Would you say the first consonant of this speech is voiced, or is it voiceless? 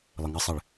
voiced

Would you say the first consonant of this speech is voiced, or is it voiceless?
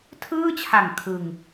voiceless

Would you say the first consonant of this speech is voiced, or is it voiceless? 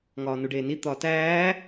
voiced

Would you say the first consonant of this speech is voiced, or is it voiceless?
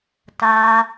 voiceless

